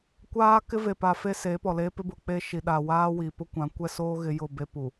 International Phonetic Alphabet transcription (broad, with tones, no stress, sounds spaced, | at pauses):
kʷ aː˦ k ɪ˦ v e˨ p a˨ f e˦ s eː˨˦ p ɔ˨ l eː˦ p ɪ˦ b ʊ˨ k͡p e˦ ʃ i˨ ɗ a˨ w aː˦ w i˨ p ʊ˦ kʷ ã˨˦ kʷ ɛ˦ s oː˦ ɣ ɪ˦ j ʊ˦˨ b e˦ p u˨